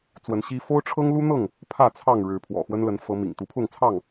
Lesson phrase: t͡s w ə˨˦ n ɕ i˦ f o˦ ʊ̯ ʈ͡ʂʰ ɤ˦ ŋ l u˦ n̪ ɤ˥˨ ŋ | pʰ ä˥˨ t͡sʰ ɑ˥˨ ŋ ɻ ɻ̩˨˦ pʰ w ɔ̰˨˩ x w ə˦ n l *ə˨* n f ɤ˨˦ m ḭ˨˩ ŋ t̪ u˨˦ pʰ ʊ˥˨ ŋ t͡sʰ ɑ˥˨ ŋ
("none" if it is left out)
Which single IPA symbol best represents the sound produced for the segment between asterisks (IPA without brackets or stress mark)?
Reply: ə˨˦